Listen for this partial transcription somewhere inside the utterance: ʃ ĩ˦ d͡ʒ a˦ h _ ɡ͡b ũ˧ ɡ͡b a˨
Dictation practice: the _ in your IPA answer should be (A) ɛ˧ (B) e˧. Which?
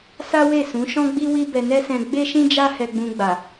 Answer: A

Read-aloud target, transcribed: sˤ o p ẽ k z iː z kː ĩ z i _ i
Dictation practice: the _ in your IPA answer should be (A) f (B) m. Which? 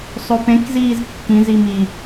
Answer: B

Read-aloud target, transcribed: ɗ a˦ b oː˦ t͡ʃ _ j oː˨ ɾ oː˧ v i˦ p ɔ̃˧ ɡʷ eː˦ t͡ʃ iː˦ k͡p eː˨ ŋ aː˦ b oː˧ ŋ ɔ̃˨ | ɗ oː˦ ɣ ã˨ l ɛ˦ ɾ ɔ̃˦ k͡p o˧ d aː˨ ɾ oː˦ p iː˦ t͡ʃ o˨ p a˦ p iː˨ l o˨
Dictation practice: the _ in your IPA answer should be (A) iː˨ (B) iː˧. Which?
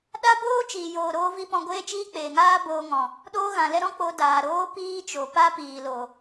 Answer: A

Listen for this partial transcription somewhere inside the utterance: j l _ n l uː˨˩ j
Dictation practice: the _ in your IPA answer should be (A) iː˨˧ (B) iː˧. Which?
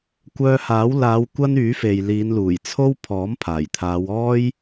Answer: A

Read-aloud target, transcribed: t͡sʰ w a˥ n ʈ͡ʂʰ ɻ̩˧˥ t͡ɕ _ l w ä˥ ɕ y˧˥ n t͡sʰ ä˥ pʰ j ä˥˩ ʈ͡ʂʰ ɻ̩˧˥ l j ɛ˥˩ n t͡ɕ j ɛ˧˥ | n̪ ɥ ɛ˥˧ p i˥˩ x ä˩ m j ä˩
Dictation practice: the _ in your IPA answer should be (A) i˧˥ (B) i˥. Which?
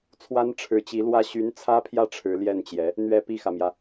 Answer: A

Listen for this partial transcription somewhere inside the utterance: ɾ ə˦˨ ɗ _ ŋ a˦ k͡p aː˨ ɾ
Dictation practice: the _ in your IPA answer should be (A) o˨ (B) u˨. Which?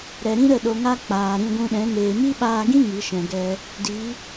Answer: A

